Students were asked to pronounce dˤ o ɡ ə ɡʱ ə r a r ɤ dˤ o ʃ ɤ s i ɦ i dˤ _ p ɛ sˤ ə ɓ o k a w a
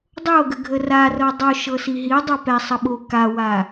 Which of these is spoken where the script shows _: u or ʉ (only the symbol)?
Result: ʉ